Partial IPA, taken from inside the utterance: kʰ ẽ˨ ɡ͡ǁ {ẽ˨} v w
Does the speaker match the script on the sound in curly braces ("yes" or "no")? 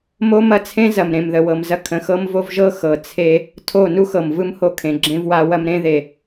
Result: no